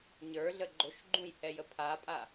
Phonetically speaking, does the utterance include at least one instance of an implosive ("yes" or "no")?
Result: no